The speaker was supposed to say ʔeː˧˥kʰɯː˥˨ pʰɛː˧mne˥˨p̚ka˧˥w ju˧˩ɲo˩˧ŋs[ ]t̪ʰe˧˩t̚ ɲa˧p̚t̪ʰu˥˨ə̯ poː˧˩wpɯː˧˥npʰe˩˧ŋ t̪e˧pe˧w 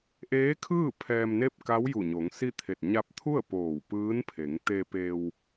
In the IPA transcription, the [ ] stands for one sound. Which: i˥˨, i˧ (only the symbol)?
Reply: i˥˨